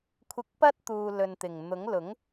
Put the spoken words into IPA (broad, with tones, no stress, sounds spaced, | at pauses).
kʷʰ ɪ˧ k̚ p ɐ˥ t̚ t̪ uː˨ l ɵ˨ n t̪ ɪ˨˩ ŋ n̪ ʊ˨˥ ŋ l ʊ˨˥ ŋ